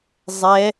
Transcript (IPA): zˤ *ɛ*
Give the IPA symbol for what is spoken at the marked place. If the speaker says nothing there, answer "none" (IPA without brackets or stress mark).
ɛ